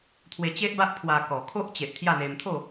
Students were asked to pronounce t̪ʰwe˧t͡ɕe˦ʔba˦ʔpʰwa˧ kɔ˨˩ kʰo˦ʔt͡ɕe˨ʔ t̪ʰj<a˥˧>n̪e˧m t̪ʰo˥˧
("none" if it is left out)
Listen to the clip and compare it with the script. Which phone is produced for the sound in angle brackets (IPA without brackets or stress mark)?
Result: a˥˧